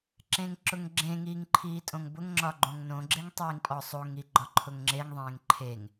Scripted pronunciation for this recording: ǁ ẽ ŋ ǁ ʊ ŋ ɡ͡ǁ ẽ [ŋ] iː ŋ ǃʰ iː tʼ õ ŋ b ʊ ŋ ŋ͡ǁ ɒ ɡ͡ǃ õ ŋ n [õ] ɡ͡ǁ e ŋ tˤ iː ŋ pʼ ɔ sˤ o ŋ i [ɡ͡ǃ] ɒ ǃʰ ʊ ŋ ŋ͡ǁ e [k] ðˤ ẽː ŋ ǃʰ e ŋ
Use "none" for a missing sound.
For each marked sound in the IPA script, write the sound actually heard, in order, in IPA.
ŋ, õ, ɡ͡ǃ, ŋ

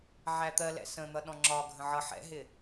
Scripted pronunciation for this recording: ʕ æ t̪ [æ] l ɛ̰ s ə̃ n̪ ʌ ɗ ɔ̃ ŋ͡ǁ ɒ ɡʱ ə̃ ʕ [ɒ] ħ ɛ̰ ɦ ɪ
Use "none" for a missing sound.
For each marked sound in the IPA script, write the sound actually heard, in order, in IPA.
ɜ, ʌ

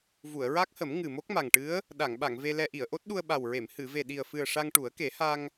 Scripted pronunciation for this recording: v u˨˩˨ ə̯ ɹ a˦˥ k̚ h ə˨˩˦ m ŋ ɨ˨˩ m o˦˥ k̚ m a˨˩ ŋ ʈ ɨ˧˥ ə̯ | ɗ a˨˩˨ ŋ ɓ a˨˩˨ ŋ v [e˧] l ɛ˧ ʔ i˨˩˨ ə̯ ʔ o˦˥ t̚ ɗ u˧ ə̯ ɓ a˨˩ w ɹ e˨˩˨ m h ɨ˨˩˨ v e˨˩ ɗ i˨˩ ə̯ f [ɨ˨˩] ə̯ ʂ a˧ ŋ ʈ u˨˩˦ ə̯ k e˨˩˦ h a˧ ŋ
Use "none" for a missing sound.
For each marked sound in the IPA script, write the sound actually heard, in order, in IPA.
e˧, ɨ˨˩

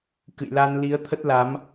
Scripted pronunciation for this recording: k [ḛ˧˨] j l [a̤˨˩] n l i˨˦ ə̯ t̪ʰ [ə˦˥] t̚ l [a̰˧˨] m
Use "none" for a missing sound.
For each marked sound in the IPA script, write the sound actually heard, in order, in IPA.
ɨ̰˧˨, a˧, ə˦˥, a˨˦

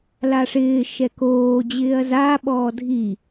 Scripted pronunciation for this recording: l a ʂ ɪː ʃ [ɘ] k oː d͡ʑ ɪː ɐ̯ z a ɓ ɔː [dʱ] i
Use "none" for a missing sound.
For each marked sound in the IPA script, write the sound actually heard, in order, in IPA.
ɛ, dʱ

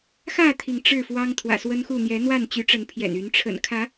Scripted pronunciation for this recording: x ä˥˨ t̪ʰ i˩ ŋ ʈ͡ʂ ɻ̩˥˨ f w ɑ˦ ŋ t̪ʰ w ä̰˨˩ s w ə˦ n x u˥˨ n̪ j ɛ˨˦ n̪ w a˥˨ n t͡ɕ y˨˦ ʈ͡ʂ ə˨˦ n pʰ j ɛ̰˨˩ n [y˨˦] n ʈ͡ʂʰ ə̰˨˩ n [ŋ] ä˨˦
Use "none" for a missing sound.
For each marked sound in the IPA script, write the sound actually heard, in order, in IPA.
y˨˦, kʰ

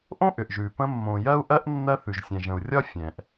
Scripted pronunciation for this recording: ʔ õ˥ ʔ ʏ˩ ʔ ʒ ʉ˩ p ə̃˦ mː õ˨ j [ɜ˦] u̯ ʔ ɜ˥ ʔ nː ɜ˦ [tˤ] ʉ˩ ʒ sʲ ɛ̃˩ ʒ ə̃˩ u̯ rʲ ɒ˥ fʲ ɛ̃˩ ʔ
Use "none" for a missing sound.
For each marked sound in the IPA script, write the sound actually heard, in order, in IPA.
ɜ˥, θ

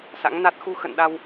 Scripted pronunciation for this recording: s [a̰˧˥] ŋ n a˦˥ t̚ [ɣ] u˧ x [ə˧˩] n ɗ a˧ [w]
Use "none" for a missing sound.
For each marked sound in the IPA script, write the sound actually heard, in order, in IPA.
a̰˧˥, x, ə̰˧˨, w

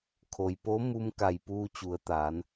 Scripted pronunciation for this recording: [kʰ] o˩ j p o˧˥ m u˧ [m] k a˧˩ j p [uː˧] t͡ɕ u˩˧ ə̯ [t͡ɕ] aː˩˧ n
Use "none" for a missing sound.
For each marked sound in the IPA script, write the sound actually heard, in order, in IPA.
kʰ, m, uː˧, t̪

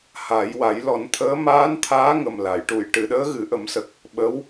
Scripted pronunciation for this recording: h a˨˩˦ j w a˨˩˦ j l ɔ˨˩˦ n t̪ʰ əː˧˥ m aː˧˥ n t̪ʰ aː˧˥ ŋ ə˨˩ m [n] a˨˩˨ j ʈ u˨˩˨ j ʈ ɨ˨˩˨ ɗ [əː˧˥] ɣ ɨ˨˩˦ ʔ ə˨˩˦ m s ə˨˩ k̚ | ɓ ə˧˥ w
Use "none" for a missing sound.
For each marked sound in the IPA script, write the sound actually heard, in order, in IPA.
l, əː˧˥

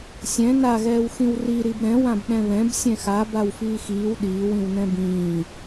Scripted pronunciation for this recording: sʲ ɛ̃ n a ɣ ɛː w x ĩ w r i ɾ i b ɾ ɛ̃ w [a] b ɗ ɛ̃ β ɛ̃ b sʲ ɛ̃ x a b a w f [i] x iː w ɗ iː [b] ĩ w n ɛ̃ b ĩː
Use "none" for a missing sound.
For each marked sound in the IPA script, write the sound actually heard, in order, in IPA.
ã, iː, w

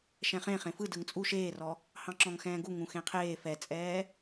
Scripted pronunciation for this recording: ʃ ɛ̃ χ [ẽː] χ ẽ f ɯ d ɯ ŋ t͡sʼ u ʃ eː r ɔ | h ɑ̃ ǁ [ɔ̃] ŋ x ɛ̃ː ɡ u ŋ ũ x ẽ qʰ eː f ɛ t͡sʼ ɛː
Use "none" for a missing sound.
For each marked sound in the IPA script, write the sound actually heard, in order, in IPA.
ẽ, ɔ̃

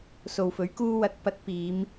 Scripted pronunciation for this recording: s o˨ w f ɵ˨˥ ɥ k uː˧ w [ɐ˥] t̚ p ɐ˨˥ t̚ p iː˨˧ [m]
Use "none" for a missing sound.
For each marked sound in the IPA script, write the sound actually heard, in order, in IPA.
ɐ˨˥, m

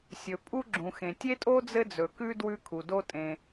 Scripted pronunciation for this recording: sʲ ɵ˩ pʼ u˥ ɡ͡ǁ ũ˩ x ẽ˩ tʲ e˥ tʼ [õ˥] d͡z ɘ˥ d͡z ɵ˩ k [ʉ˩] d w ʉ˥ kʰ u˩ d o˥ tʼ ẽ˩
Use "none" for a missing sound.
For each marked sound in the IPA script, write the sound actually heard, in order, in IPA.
o˥, ʉ˥

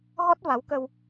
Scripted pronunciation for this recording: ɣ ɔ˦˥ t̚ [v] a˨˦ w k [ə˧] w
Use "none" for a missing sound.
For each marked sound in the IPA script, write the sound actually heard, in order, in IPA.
v, ə˧

